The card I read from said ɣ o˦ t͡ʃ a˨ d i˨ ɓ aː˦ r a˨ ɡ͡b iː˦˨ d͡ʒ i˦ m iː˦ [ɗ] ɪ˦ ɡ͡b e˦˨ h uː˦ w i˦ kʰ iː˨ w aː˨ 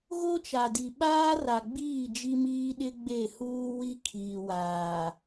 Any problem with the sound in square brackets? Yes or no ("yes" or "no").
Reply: no